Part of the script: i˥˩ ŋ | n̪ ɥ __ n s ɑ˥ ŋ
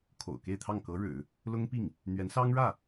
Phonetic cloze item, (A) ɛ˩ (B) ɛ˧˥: B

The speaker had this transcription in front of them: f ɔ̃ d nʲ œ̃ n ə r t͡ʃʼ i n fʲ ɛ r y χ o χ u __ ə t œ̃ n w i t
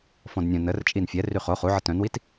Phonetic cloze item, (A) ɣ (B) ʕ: B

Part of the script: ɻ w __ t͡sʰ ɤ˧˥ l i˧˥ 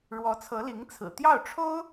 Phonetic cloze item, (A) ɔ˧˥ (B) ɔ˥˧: A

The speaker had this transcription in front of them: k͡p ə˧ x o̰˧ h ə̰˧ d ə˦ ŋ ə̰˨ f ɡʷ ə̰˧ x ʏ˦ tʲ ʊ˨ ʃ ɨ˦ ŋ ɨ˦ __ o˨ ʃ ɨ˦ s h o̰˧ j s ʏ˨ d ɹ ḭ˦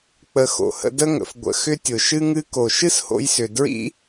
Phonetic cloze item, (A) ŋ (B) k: B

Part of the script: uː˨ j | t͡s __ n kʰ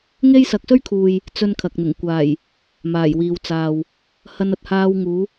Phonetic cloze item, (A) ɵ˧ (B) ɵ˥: B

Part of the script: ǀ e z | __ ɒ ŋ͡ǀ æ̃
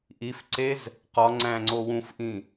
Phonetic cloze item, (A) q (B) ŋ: A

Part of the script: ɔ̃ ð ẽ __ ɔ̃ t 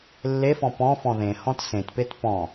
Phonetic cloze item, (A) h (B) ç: A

